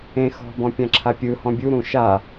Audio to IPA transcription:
ẽ xɔ̤bɔ̃ pʲãǁʰapʲɯhɔ̃ bʲuɾũ ʃa

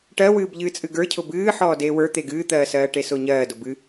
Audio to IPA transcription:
ʈɜwɨːb ʎɨːt͡sʼɨɡə˞cʰʊ bɨː ħɔːdeːwə˞ t̪eɡɨːt̪ɜːsɜː ʈesʊɲɜː dʊbɨ

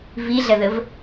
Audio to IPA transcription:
viɮɐðəv

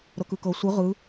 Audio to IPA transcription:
ɾɤkɯkɤ sʷɯ ʁɯ

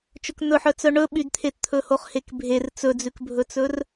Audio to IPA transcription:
t͡ʃɵkn̪ɵħœt͡sœ ɳɵɓydt̪ʰett̪ʰɵ hoχhekbʱer t͡sɵd͡zʉkbʱɵt͡sɵr

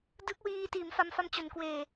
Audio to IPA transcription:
dɯ˦˥k̚wiː˧tiː˩˦m fa˧mfa˦˥mt͡ɕo˩˦n kweː˨˩

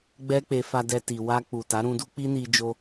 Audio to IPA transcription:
ɡ͡bɛ˦k͡pe˧fa˧dɛ˧ ti˨ wa˧ k͡pu˨ ta˨˦ɾũ˧ du˦k͡pi˦ni˧d͡ʒo˧

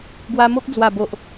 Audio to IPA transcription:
ɡwa˧mo˦k̚ d͡zwa˨˩bo˨ʔ

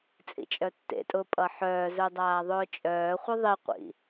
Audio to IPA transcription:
t͡sʼḭt͡ʃʼœtːḛtʼʊː pʼʌħœːzœ dˤaːðˤʊːt͡ʃʼœːχʷʌ ðˤiqʷḭ

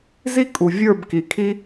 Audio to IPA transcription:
zi˦ kʼu˨vʲə˞˦˨bki˨ kʰi˦

